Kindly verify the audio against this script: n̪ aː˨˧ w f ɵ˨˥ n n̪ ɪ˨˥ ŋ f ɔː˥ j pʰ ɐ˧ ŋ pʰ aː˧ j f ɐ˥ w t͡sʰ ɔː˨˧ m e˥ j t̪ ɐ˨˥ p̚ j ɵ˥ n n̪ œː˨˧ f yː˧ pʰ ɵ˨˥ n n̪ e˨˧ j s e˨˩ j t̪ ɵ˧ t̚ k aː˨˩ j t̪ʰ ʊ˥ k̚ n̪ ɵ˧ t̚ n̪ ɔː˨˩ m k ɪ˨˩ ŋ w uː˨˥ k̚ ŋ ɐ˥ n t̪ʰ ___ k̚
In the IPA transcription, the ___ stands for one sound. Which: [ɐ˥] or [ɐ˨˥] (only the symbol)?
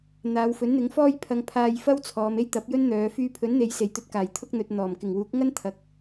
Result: ɐ˨˥